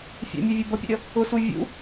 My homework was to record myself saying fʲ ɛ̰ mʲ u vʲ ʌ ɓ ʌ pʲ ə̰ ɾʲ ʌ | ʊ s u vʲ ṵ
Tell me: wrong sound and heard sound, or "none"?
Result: ɓ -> b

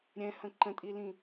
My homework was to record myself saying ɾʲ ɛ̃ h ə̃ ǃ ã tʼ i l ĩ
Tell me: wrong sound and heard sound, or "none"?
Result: ã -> ə̃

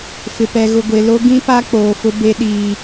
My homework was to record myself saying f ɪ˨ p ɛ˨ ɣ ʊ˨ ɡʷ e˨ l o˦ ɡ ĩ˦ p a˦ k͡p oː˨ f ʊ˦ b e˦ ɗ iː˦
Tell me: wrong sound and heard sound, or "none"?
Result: none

